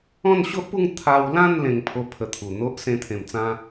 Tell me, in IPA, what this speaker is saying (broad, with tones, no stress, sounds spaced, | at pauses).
ɔ̃˥˧ n ɕ o˦ ʔ p u˥˧ ŋ t̪ʰ a˧ w l ã˥˧ n l ẽ˧ ŋ pʰ o˦ pʰ ə˧ t̪ʰ u˨˩ n̪ o˦ ʔ s ẽ˧ t̪ʰ ẽ˨˩ m t͡s ã˧